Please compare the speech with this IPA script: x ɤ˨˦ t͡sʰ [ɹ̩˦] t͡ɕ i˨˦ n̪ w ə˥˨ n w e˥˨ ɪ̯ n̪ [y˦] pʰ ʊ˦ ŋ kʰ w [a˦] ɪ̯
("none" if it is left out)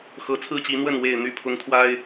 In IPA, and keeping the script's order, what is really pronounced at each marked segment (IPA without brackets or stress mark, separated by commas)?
ɹ̩˦, y˥˨, a˦